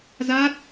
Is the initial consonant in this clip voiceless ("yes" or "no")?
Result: no